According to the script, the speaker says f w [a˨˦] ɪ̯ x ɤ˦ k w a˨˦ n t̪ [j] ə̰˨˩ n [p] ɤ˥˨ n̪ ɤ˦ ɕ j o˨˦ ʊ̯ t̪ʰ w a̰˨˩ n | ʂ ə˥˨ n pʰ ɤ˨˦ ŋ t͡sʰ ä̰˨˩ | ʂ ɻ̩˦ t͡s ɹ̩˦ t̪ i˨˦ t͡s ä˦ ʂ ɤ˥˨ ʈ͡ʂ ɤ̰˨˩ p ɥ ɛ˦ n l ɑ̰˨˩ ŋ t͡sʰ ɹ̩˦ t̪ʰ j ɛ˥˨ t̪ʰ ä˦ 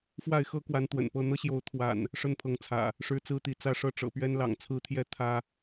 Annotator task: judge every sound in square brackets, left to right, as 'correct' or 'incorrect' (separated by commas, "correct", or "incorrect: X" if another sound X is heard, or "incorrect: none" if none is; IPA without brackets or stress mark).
incorrect: a˥˨, incorrect: w, correct